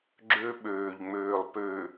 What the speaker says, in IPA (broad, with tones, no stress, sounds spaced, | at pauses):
ɡ͡ǁ ø˦ ɓ øː˨ ʎ ŋ͡m øː˨ lˠ p ø˨